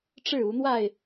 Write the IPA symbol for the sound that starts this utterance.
ʈ͡ʂ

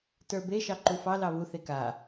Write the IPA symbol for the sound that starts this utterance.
t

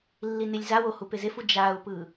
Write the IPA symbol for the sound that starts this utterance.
lː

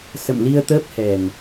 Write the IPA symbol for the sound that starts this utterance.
s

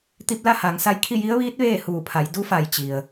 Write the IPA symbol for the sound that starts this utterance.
t̪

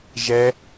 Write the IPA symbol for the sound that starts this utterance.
ʒ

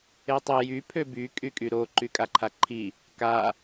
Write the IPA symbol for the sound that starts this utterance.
e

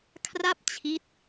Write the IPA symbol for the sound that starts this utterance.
kʰ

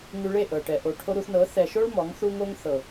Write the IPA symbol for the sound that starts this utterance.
ŋ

